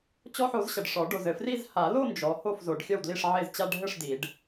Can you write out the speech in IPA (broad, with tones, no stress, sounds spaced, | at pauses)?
t͡ɕ ɔ˦˥ ħ o˨˦ z ɕ ɐ˨ ɖ ʂ ɔ˨˩˦ ɖ o˨ z ɘ˨ f r i˥˧ z h a˨˩˦ l o˥˧ n d͡ʒ ɔ˨˦ h o˥˩ f z o˨˩˦ ɖ xʲ ɐ˥˩ w d l i˥˩ ʂ ʕ e˥˩ z t͡ɕ a˥˧ ɖʱ ɘ˥˩ ʂ d i˨˩˦ ɖ